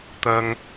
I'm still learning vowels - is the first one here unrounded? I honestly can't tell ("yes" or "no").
yes